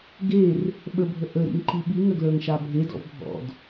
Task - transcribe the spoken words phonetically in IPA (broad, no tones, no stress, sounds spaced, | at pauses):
ɡ e r | ɓ ə bʱ ə ʔ ə ɾ ḭ ŋ ǃ i ɓ i ŋ ə ɡ l ə˞ ŋ ʃ a bʱ e d ɔ̰ v bʱ ɔ̰ d